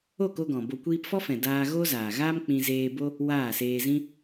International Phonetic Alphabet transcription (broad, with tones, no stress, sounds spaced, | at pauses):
o˦˨ k o˧ ɡ ɔ̃˨ b o˧ kʷ iː˧ p f ɔ˦ f ɛ̃˨ d aː˧ ɣ oː˦ z aː˨ ɣ aː˦ m k͡p ĩ˧ z eː˧ b o˦ | w aː˦˨ s eː˧ z ĩ˦